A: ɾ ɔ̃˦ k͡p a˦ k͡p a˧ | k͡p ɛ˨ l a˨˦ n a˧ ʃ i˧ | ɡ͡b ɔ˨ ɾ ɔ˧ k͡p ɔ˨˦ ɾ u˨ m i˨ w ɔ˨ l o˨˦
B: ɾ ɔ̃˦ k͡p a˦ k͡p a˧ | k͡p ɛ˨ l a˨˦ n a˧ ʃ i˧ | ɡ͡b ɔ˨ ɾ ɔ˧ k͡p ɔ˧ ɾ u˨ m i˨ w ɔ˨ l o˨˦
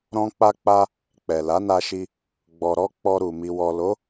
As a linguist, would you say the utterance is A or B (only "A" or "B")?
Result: B